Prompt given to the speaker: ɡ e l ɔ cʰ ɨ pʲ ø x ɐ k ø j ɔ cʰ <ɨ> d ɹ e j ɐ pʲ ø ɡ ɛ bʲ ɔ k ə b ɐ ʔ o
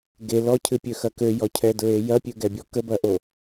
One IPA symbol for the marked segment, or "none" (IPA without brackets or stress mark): ɛ